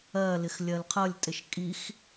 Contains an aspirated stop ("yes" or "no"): yes